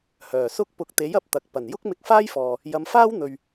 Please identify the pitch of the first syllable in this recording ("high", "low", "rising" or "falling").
low